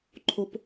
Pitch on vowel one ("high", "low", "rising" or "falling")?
high